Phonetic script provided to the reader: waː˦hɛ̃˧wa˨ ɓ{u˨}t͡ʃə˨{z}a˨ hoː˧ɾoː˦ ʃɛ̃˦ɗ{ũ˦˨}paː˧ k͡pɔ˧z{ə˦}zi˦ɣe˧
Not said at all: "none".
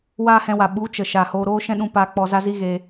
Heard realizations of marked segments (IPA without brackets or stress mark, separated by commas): u˨˦, ʃ, ũ˧, a˦